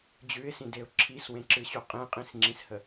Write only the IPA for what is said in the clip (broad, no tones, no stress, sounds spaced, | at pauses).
d͡ʑ ʉ ɪ̯ s ĩ d e ʊ̯ ǁʰ i s w ẽ ǁ ɨ ɕ u qʼ ẽ qʼ ĩ s ŋ͡ǁ ĩ s h ə